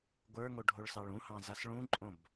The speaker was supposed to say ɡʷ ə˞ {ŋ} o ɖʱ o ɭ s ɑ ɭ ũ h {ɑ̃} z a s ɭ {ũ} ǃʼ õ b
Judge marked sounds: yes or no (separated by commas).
yes, yes, yes